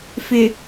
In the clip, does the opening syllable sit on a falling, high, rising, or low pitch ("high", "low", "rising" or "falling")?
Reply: low